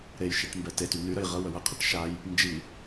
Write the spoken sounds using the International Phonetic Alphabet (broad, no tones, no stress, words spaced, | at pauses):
ɾejʃeʈ mbɛtety nyɾəj ʁə wəwəqʰeʈ ʃaj | nd͡ʒi